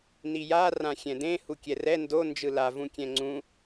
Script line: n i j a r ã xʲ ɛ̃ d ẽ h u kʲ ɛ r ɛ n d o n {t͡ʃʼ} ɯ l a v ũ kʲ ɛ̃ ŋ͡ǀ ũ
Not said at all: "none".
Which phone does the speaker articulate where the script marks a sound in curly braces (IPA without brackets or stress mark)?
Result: d͡ʒ